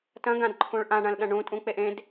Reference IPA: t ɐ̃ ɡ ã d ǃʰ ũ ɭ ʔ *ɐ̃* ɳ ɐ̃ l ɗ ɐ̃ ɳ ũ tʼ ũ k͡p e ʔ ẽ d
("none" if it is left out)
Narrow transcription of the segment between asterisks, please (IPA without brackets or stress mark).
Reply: ã